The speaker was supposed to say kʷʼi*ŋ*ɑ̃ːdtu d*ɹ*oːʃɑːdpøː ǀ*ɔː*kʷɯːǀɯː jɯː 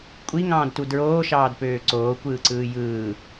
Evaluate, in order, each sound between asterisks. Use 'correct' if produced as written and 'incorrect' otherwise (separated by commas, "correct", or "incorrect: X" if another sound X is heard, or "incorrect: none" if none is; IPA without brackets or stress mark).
correct, correct, incorrect: oː